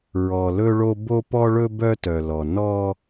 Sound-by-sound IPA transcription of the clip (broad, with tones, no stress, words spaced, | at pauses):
ɹɔ˨lɵ˦ɭo˦ bo˦pɔ˦ɭɵ˦ bœ˦ tœ˨lɔ˨ nɔ˦